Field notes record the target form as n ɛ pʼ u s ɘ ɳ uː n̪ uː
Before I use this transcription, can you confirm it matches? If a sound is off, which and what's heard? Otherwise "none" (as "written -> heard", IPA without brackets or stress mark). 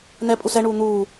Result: ɘ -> ɛ